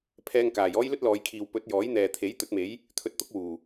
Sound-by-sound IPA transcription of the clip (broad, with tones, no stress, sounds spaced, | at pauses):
pʰ ɛː˧ ŋ k aː˨˩ j ɔː˥ j l ɵ˥ t̚ l ɔː˨˧ j kʰ iː˨ w p ɵ˨˥ t̚ j ɔː˨˥ j n̪ ɛː˨ t̪ʰ e˨˥ j t̪ ɵ˨˥ t̚ m e˨˥ j | t̪ʰ ɵ˧ t̚ t̪ ʊ˥ k̚ w uː˨˩